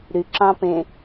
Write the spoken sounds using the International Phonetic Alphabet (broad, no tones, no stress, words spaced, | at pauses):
ɾy ǁɑ̃pẽ